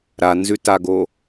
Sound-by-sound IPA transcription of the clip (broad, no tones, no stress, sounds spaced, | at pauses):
ɾ a n z ʉ t a ɡ o